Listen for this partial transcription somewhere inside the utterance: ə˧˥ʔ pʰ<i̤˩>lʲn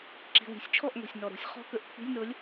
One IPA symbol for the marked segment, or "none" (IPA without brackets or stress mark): i̤˧˥˧